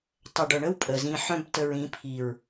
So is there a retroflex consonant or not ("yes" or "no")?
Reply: yes